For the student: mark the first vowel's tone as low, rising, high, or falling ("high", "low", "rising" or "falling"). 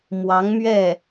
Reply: rising